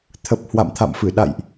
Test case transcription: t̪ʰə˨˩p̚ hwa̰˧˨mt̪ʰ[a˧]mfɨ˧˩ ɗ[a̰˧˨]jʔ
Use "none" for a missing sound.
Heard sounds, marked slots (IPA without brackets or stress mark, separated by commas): a̰˧˨, a̰˧˨